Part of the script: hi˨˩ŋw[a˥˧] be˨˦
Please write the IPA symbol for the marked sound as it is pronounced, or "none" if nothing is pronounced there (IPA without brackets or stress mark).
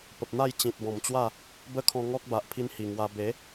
a˧